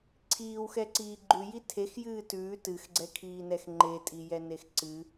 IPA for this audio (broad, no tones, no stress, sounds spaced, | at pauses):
ǀʰ iː w x ɛ ǀ iː ɡ͡ǃ ʉ j i tʰ e x j ɨː t ʉː t ɨ x ɡ͡ǀ ɛ kʰ iː n ɛ x ŋ͡ǃ e tʼ i j ɛ n e x ǀ ɨ